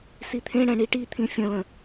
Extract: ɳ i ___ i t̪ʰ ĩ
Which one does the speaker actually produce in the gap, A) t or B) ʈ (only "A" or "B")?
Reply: B